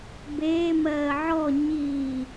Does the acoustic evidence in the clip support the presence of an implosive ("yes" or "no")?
no